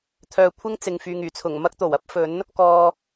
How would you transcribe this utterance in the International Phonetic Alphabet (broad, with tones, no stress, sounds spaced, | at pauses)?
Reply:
t̪ʰ œː˧ kʷʰ ɪ˥ ŋ t͡s ɪ˨ ŋ f yː˨ ŋ yː˨˩ t͡sʰ ʊ˨˩ ŋ m ɐ˥ k̚ t̪ o˨˩ w ɐ˥ p̚ f ɵ˨˥ n | k ɔː˧